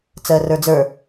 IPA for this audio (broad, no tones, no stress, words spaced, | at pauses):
t͡sɜrə˞d͡zə˞